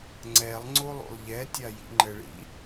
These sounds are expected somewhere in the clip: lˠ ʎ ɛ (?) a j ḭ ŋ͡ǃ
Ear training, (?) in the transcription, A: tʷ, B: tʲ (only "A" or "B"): B